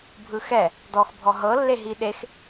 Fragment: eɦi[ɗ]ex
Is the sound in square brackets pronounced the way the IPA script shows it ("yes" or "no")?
yes